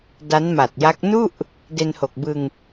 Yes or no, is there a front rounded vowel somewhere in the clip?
no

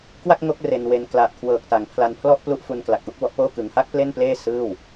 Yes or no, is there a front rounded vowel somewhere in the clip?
no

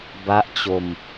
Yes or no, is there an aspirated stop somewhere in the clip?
no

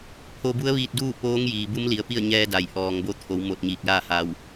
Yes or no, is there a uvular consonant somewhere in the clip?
no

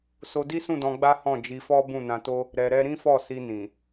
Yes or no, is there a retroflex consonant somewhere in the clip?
no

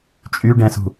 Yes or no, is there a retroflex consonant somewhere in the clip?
yes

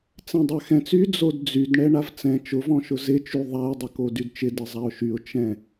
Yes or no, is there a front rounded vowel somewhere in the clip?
yes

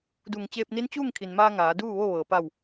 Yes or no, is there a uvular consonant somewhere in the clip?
no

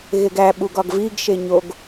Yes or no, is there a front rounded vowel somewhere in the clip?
no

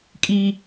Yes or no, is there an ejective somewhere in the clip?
yes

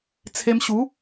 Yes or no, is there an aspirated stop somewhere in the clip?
yes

